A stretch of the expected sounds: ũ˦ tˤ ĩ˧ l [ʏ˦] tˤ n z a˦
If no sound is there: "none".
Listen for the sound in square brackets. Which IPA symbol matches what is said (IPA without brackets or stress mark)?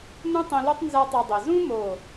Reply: u˦